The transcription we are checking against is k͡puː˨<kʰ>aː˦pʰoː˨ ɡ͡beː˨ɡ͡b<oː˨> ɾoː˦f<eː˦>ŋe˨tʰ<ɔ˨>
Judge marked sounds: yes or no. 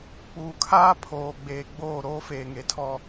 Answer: yes, no, no, no

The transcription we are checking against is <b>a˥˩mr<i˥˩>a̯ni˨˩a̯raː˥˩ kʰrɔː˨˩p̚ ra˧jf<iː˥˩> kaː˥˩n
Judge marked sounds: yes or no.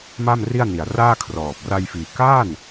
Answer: no, yes, no

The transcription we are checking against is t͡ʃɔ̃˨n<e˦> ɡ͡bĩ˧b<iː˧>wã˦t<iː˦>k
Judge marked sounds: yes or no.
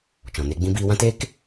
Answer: yes, yes, no

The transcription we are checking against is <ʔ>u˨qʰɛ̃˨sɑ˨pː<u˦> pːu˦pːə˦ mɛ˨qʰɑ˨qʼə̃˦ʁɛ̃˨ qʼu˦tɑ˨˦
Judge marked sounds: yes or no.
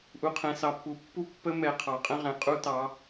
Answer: yes, no

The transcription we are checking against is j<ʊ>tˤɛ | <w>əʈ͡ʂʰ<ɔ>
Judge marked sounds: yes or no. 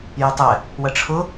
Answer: yes, yes, no

